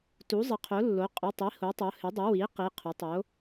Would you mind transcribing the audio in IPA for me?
t u˩˥ zˤ ɪ˩˥ qʰ o˩˥ lː o˩˥ qʼ ʊ˩˧˩ tˤ i˩˥ h o˩˥ tˤ o˩˥ h ɪ˩˥ dˤ ɪ˩˥ w i˩˥ q i˩˧˩ qʰ ʊ˩˥ tˤ o˩˥

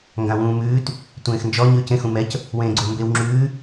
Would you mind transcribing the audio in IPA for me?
ŋ ɡ ã w ũː m ʉː t | tʷ ẽː x n d͡ʒ ɔ ɲ ʉː c ẽ x ũ m ɛ c | w ẽː ɡ͡ǀ o m b e w ŋ͡ǁ ʉː

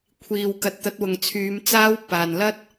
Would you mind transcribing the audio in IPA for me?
kʷʰ iː˨ w k ɐ˨˥ t̚ t̪ ɐ˨˥ t̚ w ʊ˨ ŋ t͡sʰ yː˨˧ m t͡s aː˧ w p aː˨ n l ɐ˥ t̚

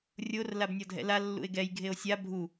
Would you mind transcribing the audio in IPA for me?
rʲ o r l a b nʲ ɔ dʱ ɛ̰ l a lː ṵ e̯ ɡ ɛ j ɡʱ e o̯ sʲ a bʱ u

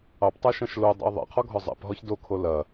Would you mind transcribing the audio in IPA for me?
ɑ p tˤ ɜ ʃ ɐ̃ ʃ l o dˤ ɛ̰ ə̯ ðˤ ɛ̰ qʰ ɔ ɡʱ ɔ zˤ ɛ̰ p ɦ ɔ ç d o kʰ o l ɐ

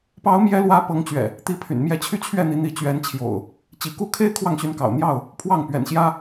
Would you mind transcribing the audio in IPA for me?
p ɑ˨˦ ʊ̯ m j ɛ˨˦ l w ä˨˦ p ɤ˨˦ ŋ t͡ɕ ɥ ɛ̰˨˩ | t̪ i˨˦ pʰ y̰˨˩ n m j ɛ˥˨ t͡ɕʰ y˦ t͡ɕʰ ɥ ɛ˥˨ n̪ i˨˦ n̪ i˨˦ t͡ɕ ɥ ɛ˨˦ n t͡ɕʰ j o̰˨˩ ʊ̯ | t͡ɕ i˨˦ k u˥˨ kʰ e˦ ɪ̯ kʰ w ɑ˥˨ ŋ ɕ y˨˦ n k ɑ̰˨˩ ʊ̯ n̪ j ɑ˥˨ ʊ̯ | pʰ w ɑ˥˨ ŋ p ɥ ɛ̰˨˩ n ɕ j ä˦

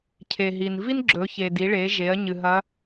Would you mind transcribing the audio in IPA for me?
cʰ e˩ ɦ i˩ n v i˥ n ɡ͡ǁ ɵ˩˧ ç e˩ d i˩˧ ɭ e˩˧ ʒ e˩˧ ɐ̯ ɲ ɨ˩ ɦ ɐ˧˥

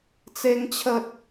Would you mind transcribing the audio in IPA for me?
t͡s e˦ ŋ t͡ɕʰ ə˦ t̚

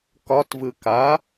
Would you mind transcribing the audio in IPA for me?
k ɒ t v ɯ k a

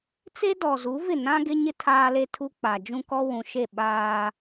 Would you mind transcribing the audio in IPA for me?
t͡s e˦ d ɔ˨ z u˨˦ v ɪ˦˨ n ã˦ ɡ ɪ˦ ɲ ɪ˦ tʰ aː˦ l e˦ tʰ u˦ k͡p a˨ d͡ʒ ũ˦ k ɔ˦ w ũ˨ ʃ e˦˨ ɓ aː˦

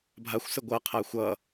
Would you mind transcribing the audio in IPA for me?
bʱ a xʷ s ɘ ɡʷ ʌ qʰ a xʷ ʌ

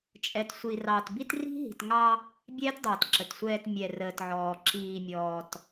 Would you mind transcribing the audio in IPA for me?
t͡ʃʼ ɛ˨ t sʷ i˨ r ɑ˨ t b i˦ t r i̤˦ ɦ i̤˨ t ŋ ɑ˦ | bʲ ɛː˦ t dˤ əː˨ t ǁ ə˨ t sʷ ɛː˨ t mʲ ɛ˨ r əː˨ t ʕ ɔː˨ ǁ iː˨ mʲ ɔː˨ t

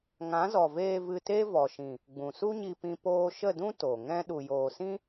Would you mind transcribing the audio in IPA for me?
ŋ ã˨˦ z ɔ˨ v eː˧ v ɨ˧ t e˦ v ɔ˨ ʃ ĩ˨ | ɡ͡b ũ˨ s u˦ ɲ i˧ p ĩ˧ p oː˧ ʃ ə˦˨ d ũ˦ t o˨ ŋ ɛ̃˦ ɗ u˨ j oː˨ s ĩ˦

